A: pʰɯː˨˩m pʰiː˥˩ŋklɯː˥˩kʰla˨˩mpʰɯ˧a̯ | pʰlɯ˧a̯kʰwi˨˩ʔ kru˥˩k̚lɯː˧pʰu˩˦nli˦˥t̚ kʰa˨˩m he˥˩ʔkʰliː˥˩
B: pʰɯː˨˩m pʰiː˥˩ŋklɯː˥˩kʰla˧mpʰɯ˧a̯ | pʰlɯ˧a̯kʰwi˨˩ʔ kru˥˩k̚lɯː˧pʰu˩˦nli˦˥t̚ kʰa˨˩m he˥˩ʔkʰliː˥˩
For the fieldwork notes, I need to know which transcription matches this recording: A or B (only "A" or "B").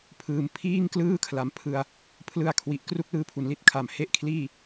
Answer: A